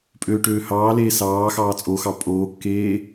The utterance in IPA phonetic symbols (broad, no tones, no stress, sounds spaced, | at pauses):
pʼ øː ʈ øː h ɑː l eː s ɑː x ɑː t͡sʼ o x ɑ pʼ oː kː eː